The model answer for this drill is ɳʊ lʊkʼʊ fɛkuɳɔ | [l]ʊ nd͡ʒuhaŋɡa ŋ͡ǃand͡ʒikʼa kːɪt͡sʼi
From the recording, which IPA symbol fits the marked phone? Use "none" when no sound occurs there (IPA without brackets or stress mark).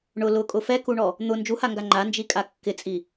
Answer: n̪